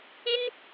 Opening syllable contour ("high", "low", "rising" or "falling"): high